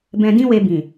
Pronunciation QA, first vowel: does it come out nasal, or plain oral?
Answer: nasal